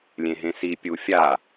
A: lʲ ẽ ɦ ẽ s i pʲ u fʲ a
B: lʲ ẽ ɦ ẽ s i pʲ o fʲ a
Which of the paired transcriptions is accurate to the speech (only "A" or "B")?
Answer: A